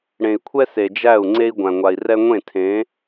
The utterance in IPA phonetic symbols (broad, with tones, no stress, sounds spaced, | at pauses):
ɽ ẽ˨ i̯ kʷʰ ɛ˦ s e˨ d͡ʒ æ˦˨ u̯ ŋ͡ǀ e˦ i̯ ɡʷ æ̃˨ ŋʷ a˨ i̯ r ɛ˦ ŋʷ ẽ˦˨ tʰ ẽ˨˦